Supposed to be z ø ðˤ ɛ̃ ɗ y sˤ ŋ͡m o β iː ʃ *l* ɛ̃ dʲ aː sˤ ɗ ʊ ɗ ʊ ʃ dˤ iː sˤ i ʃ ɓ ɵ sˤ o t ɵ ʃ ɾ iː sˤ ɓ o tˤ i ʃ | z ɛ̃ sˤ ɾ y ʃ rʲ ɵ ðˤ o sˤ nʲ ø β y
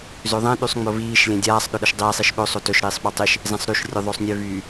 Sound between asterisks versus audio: incorrect: lʲ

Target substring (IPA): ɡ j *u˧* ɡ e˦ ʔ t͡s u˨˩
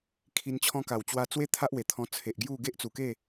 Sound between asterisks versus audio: incorrect: u˥˧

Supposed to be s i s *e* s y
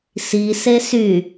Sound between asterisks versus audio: correct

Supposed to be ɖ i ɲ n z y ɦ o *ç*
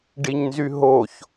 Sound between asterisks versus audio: correct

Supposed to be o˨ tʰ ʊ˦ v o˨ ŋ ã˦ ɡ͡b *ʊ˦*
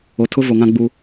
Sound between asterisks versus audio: incorrect: u˦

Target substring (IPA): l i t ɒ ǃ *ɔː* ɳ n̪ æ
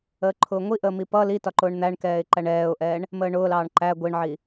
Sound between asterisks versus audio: incorrect: ʊː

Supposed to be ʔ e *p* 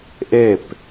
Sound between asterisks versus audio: correct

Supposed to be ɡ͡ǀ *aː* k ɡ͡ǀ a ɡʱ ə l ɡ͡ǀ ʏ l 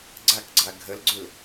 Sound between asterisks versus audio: incorrect: a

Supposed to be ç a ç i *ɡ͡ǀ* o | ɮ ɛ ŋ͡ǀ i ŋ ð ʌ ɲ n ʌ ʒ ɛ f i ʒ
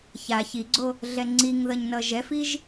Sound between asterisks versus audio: correct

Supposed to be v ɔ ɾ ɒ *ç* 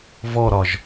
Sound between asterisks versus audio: incorrect: ʒ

